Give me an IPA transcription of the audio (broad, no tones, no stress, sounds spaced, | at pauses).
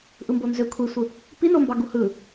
ʔ ɯ m b o n z ø kʷʰ i sʷ ɯ | p i n o m b ɑ ɡ u h ɯ